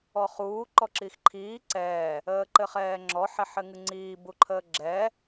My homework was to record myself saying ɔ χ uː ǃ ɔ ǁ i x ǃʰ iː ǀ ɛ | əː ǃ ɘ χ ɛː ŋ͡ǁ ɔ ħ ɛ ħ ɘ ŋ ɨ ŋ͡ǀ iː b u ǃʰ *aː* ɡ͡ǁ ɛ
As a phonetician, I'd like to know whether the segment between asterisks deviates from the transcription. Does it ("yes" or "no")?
yes